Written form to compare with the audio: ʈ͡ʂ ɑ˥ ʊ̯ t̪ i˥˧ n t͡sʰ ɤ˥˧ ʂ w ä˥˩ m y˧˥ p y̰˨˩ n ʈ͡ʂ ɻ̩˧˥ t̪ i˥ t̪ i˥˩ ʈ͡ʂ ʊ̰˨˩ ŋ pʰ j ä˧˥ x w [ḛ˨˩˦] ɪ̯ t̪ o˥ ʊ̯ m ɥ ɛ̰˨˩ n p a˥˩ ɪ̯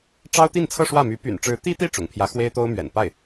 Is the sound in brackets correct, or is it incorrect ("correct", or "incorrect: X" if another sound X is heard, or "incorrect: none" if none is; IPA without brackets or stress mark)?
incorrect: e˥